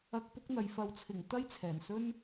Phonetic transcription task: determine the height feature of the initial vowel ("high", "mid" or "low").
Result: low